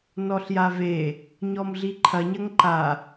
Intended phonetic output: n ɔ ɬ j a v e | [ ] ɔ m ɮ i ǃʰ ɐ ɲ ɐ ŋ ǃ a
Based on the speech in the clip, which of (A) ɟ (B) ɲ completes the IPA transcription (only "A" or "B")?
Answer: B